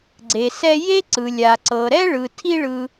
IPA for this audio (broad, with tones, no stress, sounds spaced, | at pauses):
ɡ͡ǀ e˩ s ɛ˦ j e˥ ǀ ɯ˩ lʲ a˩ ǀ ɤ˩ ɾ ɛ˥ ɭ ɯ˩ tʰ i˦ ɭ ɯ˨